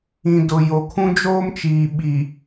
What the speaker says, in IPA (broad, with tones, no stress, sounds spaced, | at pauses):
ĩ˨ d ʊ˨ j o˨ kʰ ũ˦ d͡ʒ oː˦ m t͡ʃ iː˨ ɓ i˨